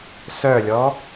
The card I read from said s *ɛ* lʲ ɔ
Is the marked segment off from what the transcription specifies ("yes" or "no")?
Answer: yes